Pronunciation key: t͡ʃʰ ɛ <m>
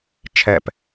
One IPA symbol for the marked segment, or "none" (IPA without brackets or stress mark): p